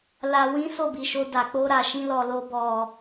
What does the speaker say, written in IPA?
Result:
l a˨ w ĩ˨˦ s o˦˨ b i˨ ʃ o˧ d a˨ k͡p o˧ ɾ a˨ ʃ ĩ˧ l ɔ˨ l o˧ b ɔ˨

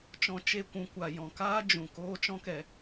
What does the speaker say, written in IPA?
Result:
t͡ʃ ɔ̃˧ t͡ʃ e˧ kʷ ũ˨ kʷ a˨ j ɔ̃˨ k aː˦ d͡ʒ ũ˨ k oː˦ t͡ʃ ɔ̃˦ k ɛ˨

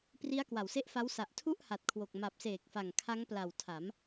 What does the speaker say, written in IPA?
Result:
p r i˦˥ a̯ k w a˨˩ w s e˦˥ ʔ f a˦˥ w s a˨˩ ʔ tʰ u˥˩ ʔ h a˨˩ t̚ kʰ w o˨˩ k̚ m a˨˩ p̚ s eː˨˩ k̚ f a˨˩ ŋ kʰ a˦˥ ŋ p l a˨˩ w tʰ a˩˦ m

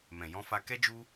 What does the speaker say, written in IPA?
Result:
m ɛ̃˨ j ɔ̃˧ f a˧ k ɛ˧ d͡ʒ u˧

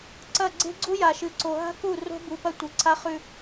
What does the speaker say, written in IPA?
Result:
ǀ ɐ˦˨ ɡ͡ǀ e̤˦ ɡ͡ǀ u˦ j a˨ ʃ ɨ˨ ǀ o˨ ɦ a̤˦ k u˦˨ r o̤˦ b u˨ p ɐ˦ tʷ ɨ˨ ǀʰ a˦ χ ʉ˦

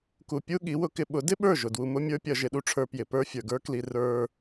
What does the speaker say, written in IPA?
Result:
k u˨ pʲ u˦ ɠ i˨˦ w ʊ˧ k ɪ˧ ɓ ʊ˨˦ d ɪ˦ ɓ ə˞˦˨ ʒ ʊ˨ d w u˧ m ʊ˦ mʲ ə˞˦ pʲ ʌ˧ ʒ ɪ˧ ɗ u˧ ʈ͡ʂʰ ə˞˧ p j ɪ˨ p ə˞˦ fʲ ə˞˨ ɡ ə˞˦ k l i˧ r ə˞˦

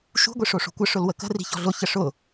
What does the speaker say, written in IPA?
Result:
ʃ ṳ ɡʷ i ʂ o ʂ o̤ kʷ ə ʂ ʊ l w ə k ə̤ r i̤ ç ɔ̤ ɮ ʊ ç ə ʂ ʊ

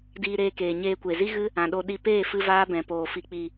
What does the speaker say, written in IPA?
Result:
d iː˧ ɾ eː˧ k eː˨ ɲ eː˧ kʷ e˨ z i˦ ɣ ɨ˦ | ã˨ ɗ o˧ ɗ i˧ p eː˦˨ f ɨ˦ v aː˦ b ɛ̃˨ p oː˨ f i˨ k͡p i˨

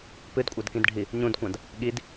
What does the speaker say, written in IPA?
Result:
p ɨ d kʷʼ a d k ĩ d ɖʱ i | ɲ ũ d kʷ ã d | ɠ i d

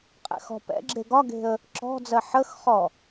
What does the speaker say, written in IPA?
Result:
qʼ ɛ̰ x ɔ̤ p ɛ̰ ɡ͡ǁ e ɡ ɒ ɡ e̤ ə̯ | ǁ ɔ̤ d͡z ɜ ħ ə x χ ɔ

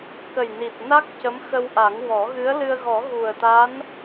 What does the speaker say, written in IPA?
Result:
k ə˨˩ j n i˨˩ t̚ n a˦˥ k̚ c ə˧˥ m x ə˧ w ʔ a˨˩˦ ŋ w ɔ˨˩˦ ɣ ɨ˧˥ ə̯ l ɨ˧ ə̯ ɣ ɔ˨˩˦ ɣ u˨˩ ə̯ t̪ a˧˥ n

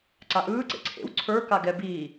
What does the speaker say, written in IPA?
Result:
ǀ a ʔ ɯː ǀ ḛ ǀʰ ḛ w ǀʰ ə˞ k a ɡ ɛ b iː

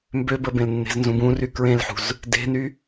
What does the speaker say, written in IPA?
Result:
m b ø b ə b ẽ l nː e̤ z n z ũ b ũ r y k ɹ ẽ l ħ ṳ z | d e̤ n y

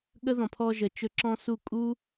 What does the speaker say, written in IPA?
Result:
ɠ ə˦ ð ɔ̃˨ pʰ ɔ˧ ʒ ə˨ t͡ʃ ɵ˧ ǁ ɔ̃˦ s u˦˨ kʼ u˦

